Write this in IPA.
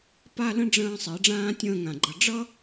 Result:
pa˥˧lə̃˥ ɖ͡ʐə̃ː˧sˤi˩˧ ɖ͡ʐãː˥tʲə̃ː˥˧ŋã˧˩ɡ͡ǃʌ˧ ɖ͡ʐʌ˥

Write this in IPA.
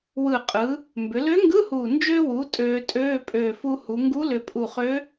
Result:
wɯ˨˩qʼɯ˩˧ | mbʏ˩˧lø˧˥ŋɡɯ˧˥˧huː˨˩ nd͡ʒø˧wu˩˧ tʼøː˧tʼøː˧˥˧ pʼøː˨˩fu˧hu˩˧ ŋɡu˧˥lʏ˨˩pʼu˨˩χø˧˥

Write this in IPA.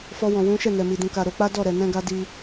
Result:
fɔ˧wɔ̃˨wũ˨˦ ʃɛ˦˨nɛ˨mi˨ dũ˨ka˨ ɾo˨˦k͡pa˦dɔ˦˨ ɾɛ˨nɛ̃˧ɡa˧ di˧

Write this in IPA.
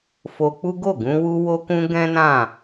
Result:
fo˧k͡pu˦ ɡo˦˨ɡũ˧wu˧ wo˧kũ˧ ɡɛ̃˦nã˦˨

